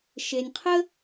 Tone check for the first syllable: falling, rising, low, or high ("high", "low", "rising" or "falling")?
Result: low